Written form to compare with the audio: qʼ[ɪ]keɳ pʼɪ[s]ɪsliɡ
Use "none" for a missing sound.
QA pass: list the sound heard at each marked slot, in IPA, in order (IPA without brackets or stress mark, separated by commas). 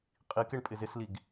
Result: i, z